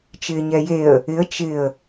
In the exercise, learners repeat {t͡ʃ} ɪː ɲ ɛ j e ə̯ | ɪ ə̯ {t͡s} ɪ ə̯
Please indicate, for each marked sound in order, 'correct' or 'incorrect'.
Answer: correct, incorrect

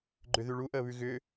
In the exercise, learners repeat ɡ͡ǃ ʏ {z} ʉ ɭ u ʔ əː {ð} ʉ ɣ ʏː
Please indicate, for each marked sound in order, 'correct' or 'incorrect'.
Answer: incorrect, incorrect

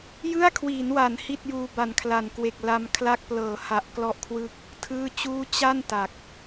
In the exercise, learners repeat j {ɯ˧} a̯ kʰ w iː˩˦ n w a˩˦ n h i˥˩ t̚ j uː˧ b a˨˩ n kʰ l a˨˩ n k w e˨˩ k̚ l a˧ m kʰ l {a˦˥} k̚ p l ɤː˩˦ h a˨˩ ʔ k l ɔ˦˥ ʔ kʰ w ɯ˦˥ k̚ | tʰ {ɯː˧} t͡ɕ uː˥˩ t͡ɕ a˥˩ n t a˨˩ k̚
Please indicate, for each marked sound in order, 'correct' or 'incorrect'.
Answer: incorrect, correct, incorrect

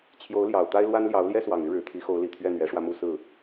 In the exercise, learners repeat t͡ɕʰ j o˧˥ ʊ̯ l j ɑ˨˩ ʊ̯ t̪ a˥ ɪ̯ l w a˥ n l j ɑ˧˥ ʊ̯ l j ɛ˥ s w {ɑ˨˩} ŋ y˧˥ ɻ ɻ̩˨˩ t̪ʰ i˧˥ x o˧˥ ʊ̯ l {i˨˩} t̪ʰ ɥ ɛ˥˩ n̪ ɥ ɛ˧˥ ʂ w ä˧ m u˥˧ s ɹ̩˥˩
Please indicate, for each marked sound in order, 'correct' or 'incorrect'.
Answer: correct, correct

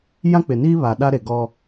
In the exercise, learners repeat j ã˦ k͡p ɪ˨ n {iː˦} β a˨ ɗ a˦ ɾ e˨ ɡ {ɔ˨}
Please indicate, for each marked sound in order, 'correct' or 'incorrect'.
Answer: correct, incorrect

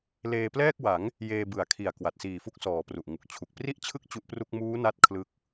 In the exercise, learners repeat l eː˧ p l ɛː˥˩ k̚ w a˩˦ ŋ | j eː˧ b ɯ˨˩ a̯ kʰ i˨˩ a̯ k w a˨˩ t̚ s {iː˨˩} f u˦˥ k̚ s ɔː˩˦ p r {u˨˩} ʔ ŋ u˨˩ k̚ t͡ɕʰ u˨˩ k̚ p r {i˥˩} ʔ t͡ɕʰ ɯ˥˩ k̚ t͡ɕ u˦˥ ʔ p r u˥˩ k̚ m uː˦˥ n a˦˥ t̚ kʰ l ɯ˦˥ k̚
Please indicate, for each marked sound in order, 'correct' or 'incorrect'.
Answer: correct, correct, correct

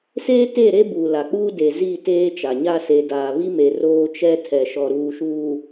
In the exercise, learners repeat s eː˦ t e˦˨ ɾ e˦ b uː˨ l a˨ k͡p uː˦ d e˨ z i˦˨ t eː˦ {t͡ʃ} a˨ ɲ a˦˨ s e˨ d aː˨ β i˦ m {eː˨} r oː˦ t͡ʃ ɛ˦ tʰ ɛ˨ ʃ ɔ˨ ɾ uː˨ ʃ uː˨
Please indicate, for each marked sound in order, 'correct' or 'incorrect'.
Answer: correct, incorrect

